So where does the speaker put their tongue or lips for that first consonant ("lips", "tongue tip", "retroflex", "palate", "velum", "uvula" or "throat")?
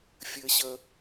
lips